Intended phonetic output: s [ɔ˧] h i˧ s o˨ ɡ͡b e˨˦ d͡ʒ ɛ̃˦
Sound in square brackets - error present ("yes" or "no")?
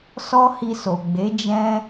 yes